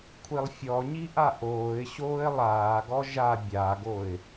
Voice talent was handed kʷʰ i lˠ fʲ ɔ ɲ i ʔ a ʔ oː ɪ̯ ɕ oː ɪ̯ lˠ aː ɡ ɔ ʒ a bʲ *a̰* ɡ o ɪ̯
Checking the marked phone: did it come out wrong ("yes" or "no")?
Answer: yes